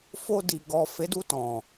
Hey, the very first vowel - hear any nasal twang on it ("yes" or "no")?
no